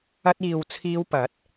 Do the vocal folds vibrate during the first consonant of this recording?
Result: no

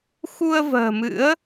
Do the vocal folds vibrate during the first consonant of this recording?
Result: no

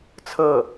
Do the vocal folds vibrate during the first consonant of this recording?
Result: no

